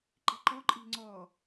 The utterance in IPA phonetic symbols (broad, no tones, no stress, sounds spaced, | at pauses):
ǃ i̤ ǃ ɔ ǃʼ i̤ ŋ͡ǀ ɔ